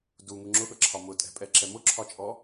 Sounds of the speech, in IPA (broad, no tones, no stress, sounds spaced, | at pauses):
d u ŋ u ŋ͡ǁ ʊ ɠ ʌ ǁʰ ɒ m ʊ tʼ ɛ̤ pʼ ɛ ǁ ɛ m ʊ ǁʰ ɒ t͡ʃʼ ɔ